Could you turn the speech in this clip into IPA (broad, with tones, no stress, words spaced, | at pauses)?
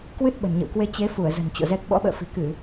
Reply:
kwɨ˦˥t̚ɓə̤˨˩nɲə̰˧˨wkwe˧ t͡ɕe˨˦fu˧˩ə̯ zə̤˨˩n t͡ɕo̰˧˨zɛ˦˥k̚ ɓɔ̰˧˥ɓə̰ː˧˨fi̤˨˩ kɨ˧˩˨